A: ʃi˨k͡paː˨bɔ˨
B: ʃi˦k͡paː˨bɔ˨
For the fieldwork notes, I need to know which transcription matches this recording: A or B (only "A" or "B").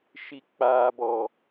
A